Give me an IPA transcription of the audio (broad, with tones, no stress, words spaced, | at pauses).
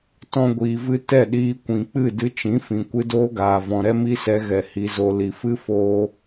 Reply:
tɔ̃˦ɡʷiː˧vɨ˦ tɛ˦˨ɗiː˧kʷĩ˨k͡pɨ˦˨ dɨ˧t͡ʃĩ˨˦fĩ˨ kʷɨ˧doː˦ɡaː˨vɔ̃˨ ɾɛ˦mi˦sɛ˧ ɣɛ˨ hi˨zo˨ li˨fɨ˦ foː˧